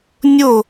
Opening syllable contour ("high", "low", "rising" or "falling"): falling